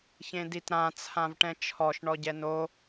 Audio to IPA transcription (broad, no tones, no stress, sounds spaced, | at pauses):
ç ẽ d i t ɾ ã t͡sʰ ã v ʈ ɛ̃ t͡ʃʰ ɔ ʃ ɳ ɔ ɟ ɛ n o